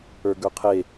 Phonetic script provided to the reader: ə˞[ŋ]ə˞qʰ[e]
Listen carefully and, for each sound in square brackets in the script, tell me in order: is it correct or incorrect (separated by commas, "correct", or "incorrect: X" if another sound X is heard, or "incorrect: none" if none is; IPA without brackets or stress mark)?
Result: incorrect: ɡ, correct